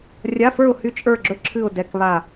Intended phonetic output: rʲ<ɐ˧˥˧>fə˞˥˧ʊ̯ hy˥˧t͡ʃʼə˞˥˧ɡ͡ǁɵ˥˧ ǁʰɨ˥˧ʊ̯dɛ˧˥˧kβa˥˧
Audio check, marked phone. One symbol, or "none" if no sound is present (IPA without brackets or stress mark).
a˧˥˧